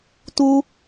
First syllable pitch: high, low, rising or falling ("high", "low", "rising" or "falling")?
high